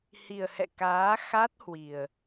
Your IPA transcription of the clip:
h i˨˩ ə̯ h ɛ̰˧˨ k aː˨˦ x a˦˥ t̚ h w i˨˩ ə̯

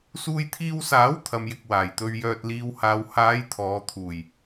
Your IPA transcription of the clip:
s uː˧ j t̪ʰ iː˧ w s aː˨˥ w t̪ʰ ɐ˨ m j ɪ˨ k̚ w aː˨˩ j t̪ ɵ˧ ɥ j œː˨ t̚ l iː˨ w h aː˨ w h aː˨˧ j t̪ʰ ɔː˨˧ t̪ʰ uː˨˩ j

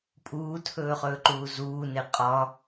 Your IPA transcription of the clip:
pʼ uː tʰ ɵː χ ɵː ǃ uː z uː n e qʼ ɒ

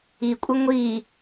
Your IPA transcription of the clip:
i kʷʼ ə ŋʷ i

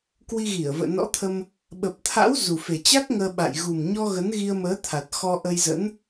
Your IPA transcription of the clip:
k w i˧ ɣ i˧˩ ə̯ v ə̰ː˧˨ n ɔ̰˧˥ t̪ʰ ə˧ m | ɓ ə˨˩ p̚ t̪ʰ a̰˧˥ w z u˨˩ f e˨˩ t͡ɕ a˦˥ k̚ ŋ əː˧ ɓ a̰˧˨ j ɣ u˨˩ m ɲ ɔ˧ ɣ ə˨˦ n ɣ i˧ ə̯ m əː˨˦ t̪ʰ a˨˩ t̚ x ɔ˧ ʔ ə˧ j z ə̰˧˥ n

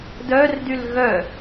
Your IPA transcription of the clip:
d œ r d y l ɣ œ

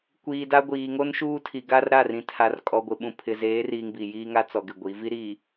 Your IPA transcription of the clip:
kʷ iː˨ d a˦ ɡʷ iː˨ ŋ o˦ n ʃ uː˦ tʰ i˨ ɡ a˦ r ɾ a˦˨ r ĩ˨ tʰ a˨ r kʼ ɔ˨ ɡʷ ɪ˨ ɓ ũ˨ pʰ ɪ˨ z eː˨˦ r iː˨ ŋ b i˨ j iː˦ ŋ a˦ t͡s ɔ˨ ɡ ɪ˨ ɡʷ i˨˦ v i˦ ɾ iː˨

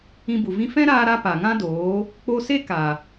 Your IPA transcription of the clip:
ĩ˧ b u˨ v ĩ˦ f ɛ̃˦ ɾ aː˧ ɾ a˧ p a˨ ŋ ã˦ d oː˨˦ | k͡p o˧ s e˦ k a˨

